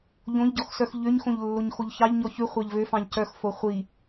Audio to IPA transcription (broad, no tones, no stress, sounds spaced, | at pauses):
ʎ õ ʎ ɟ ɔ x s œ x ʎ ø ɲ x õ ʎ lː o ɲ x o ʎ ç ɑ ʎ ɲ ɔ ç ʉ χʷ ɑ ʎ v ø f ɑ̃ ʎ c œ x f o χʷ i